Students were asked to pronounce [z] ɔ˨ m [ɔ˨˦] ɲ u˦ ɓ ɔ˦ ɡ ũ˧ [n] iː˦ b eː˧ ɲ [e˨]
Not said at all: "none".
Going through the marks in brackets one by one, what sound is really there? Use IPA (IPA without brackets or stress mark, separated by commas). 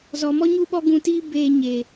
z, ɔ˦, t, e˨